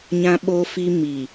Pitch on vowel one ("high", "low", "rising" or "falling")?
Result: high